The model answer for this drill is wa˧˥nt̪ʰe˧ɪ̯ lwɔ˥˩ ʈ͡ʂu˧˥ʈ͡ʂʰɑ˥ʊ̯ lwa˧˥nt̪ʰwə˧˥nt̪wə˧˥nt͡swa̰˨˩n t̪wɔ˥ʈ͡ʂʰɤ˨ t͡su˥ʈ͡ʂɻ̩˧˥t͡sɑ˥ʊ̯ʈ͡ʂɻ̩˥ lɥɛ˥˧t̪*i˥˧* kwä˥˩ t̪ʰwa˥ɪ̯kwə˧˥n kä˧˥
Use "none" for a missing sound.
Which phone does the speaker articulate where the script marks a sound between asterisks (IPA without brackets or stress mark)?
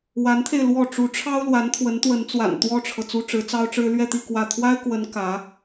i˥˧